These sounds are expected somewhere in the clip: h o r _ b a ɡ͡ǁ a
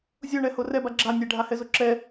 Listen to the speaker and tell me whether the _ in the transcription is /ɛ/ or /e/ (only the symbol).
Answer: ɛ